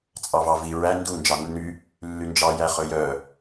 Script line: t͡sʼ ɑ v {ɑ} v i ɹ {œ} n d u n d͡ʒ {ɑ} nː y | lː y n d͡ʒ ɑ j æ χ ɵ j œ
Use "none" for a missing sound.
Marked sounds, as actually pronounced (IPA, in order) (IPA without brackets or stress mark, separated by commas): ɑ, æ, ɑ